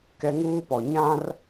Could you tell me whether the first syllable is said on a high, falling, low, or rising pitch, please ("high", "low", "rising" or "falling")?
high